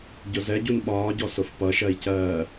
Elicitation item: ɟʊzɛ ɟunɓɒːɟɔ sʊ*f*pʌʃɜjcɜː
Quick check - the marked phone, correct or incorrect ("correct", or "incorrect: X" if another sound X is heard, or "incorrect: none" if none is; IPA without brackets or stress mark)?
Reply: correct